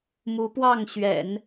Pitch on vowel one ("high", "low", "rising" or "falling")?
rising